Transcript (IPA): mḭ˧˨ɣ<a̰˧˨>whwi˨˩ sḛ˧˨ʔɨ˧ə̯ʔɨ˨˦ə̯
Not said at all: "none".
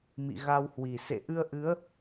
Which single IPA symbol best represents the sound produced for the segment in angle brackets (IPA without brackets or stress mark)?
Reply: a˧